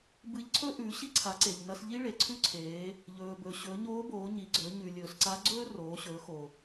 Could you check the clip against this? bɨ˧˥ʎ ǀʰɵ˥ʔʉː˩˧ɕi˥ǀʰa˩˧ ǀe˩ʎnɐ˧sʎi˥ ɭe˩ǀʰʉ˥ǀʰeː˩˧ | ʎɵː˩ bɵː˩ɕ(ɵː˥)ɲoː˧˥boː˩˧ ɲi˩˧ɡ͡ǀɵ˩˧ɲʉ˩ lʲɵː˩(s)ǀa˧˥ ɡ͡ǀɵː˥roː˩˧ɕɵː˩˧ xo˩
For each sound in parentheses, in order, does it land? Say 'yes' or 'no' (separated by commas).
no, yes